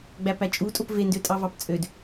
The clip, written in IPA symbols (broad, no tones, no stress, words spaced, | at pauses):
ɡ͡bæpæt͡ʃʼutʼop vendøtʼɑvɑp t͡sʼød